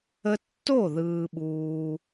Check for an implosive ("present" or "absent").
present